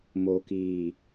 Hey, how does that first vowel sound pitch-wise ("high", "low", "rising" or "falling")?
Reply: low